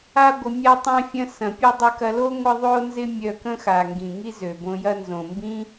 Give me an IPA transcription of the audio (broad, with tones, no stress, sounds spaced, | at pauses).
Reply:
a˥ ɡʷ ə˧ mʲ a˥ tˤ ã˥ fʲ ɐ̃˥ s ɐ̃˩ pʲ ɐ˥ dˤ ɪ˧ k ɐ˧ l o˥ ŋʷ ɪ˥ ðˤ o˥ n z ɪ˥ mʲ œ˧ k ə̃˥ x a˩ ŋ ɡ ĩ˩ ŋ i˥ z ø˩ b õ˧ j ɐ˥ n z õ˩ m b ĩ˥